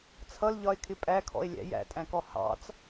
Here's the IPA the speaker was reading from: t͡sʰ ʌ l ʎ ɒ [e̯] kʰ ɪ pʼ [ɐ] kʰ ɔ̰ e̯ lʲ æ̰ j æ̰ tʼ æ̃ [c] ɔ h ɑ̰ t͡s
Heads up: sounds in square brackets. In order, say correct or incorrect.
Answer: correct, incorrect: æ, incorrect: k

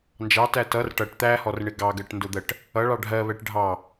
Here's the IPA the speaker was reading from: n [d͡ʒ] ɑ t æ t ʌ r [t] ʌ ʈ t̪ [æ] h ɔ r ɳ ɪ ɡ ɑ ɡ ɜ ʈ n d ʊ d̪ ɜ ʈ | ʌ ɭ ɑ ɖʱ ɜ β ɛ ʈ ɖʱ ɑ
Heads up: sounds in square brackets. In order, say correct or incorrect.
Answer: correct, incorrect: ʈ, correct

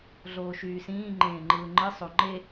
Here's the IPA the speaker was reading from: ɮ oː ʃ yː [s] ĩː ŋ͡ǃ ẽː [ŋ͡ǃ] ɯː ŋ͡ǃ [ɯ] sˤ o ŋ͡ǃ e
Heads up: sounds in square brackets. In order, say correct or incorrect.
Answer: correct, correct, correct

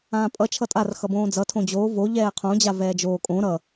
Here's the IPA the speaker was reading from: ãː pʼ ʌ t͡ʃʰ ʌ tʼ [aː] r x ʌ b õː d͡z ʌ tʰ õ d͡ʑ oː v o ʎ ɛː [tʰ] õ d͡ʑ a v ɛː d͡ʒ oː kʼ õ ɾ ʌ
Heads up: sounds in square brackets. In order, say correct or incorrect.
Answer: incorrect: a, incorrect: qʰ

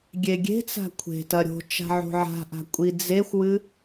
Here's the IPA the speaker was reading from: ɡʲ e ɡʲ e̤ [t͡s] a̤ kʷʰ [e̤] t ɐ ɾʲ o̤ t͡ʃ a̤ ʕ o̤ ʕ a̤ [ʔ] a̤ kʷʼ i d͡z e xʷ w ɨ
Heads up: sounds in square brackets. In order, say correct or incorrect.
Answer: correct, correct, correct

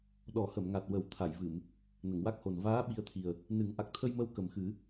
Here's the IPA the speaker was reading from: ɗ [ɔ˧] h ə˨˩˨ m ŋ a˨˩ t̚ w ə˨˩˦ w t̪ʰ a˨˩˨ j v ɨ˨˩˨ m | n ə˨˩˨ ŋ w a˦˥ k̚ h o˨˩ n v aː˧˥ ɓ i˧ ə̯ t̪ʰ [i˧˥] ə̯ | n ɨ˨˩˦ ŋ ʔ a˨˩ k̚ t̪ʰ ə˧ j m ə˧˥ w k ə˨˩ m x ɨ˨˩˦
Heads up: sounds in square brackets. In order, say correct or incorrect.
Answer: incorrect: ɔ˨˩˦, incorrect: i˨˩

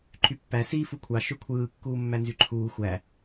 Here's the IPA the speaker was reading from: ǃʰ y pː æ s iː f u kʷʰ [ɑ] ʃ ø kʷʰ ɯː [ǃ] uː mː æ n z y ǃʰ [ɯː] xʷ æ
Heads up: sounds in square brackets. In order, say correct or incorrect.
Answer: correct, incorrect: kː, incorrect: uː

